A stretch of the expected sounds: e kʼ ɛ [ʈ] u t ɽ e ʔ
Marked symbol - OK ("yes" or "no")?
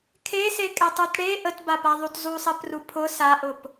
no